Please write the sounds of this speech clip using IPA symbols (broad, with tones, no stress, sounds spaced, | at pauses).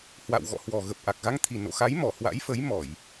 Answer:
h w a̰˧˨ w ɣ ɔ̰˧˨ h w ɔ˨˩ ɣ ə˨˩ p̚ ʔ a˨˩ k̚ ɣ a˧ ŋ t̪ʰ i˨˩ n o̰˧˨ x a˨˦ j m ɔ˧˩ h w a̰˧˥ j f ə˨˦ j m ɔ˧˩˨ j